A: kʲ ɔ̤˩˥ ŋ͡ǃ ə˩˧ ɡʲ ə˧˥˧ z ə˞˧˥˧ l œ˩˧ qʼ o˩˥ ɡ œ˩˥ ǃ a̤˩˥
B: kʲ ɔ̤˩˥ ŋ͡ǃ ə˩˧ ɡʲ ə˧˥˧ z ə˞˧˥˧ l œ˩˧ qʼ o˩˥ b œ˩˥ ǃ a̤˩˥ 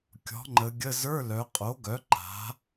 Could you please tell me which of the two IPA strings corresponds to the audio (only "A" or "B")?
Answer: A